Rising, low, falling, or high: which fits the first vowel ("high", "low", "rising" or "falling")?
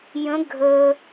rising